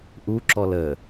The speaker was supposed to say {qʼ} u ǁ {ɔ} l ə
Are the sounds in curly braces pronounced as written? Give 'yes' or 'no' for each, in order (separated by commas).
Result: no, yes